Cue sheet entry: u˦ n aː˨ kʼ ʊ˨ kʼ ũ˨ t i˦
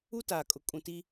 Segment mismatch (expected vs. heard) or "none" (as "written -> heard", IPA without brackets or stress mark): n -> t